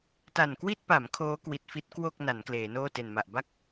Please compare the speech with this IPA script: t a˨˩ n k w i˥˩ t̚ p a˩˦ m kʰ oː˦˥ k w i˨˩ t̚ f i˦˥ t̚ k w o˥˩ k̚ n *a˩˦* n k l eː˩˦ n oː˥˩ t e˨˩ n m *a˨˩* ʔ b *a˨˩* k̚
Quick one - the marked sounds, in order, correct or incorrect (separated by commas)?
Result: correct, correct, incorrect